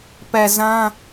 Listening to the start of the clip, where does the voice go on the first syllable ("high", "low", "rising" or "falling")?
low